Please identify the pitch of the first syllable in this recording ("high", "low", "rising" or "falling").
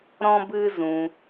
high